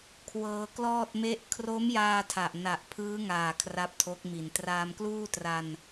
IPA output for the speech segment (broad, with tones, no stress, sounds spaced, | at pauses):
kʰ w ɤː˧ k l ɔː˥˩ t̚ m e˥˩ ʔ kʰ r o˦˥ m j aː˧ tʰ a˨˩ ʔ n a˨˩ ʔ pʰ ɯː˦˥ ŋ aː˨˩ kʰ r a˦˥ p̚ tʰ o˦˥ k̚ m i˨˩ n t r aː˧ m k l uː˥˩ t r a˧ n